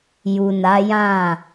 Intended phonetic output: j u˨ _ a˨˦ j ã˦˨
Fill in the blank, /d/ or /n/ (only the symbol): n